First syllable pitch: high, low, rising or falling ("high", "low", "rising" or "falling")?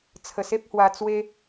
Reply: low